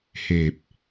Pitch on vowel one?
low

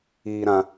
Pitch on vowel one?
high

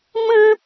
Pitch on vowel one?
high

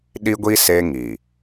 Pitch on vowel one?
high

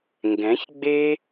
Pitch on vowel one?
rising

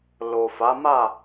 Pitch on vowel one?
low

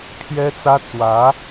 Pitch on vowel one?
high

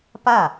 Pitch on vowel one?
falling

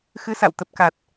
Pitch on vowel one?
rising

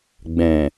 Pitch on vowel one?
low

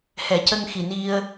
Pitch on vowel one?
low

